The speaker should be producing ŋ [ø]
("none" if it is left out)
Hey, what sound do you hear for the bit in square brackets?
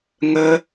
ə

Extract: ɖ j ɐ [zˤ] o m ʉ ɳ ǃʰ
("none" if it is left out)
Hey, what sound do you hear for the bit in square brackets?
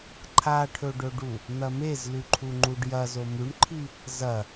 z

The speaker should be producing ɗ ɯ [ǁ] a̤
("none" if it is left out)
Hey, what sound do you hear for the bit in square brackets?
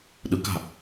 k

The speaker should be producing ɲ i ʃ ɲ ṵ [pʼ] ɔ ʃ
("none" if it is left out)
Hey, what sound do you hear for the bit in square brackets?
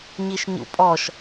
pʼ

